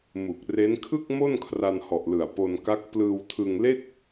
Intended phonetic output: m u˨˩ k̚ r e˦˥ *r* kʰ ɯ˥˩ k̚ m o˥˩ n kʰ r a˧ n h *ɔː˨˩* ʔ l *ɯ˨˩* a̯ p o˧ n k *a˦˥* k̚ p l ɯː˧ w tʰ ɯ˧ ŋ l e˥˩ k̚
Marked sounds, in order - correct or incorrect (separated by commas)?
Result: incorrect, incorrect, correct, correct